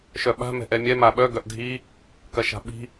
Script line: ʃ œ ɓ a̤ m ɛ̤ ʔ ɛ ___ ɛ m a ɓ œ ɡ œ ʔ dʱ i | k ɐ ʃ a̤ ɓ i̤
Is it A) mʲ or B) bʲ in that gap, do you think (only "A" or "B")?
A